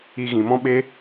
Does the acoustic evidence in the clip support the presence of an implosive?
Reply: yes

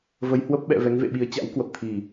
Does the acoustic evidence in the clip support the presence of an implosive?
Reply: yes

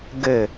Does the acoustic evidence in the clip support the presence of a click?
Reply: no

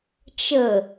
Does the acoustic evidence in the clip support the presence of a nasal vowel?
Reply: no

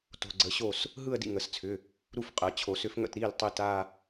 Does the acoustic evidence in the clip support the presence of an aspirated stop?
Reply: yes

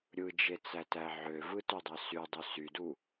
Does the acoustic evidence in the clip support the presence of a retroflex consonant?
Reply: no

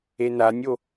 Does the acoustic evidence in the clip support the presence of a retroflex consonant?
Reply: no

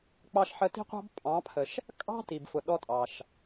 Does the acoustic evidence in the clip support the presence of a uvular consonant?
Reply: yes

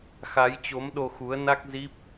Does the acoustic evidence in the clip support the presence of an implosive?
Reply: yes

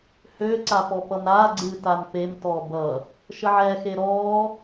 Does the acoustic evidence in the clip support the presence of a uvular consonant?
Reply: no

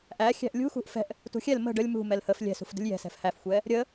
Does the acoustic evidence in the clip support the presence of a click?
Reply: no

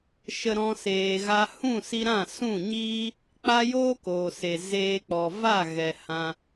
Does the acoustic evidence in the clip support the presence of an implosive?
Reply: no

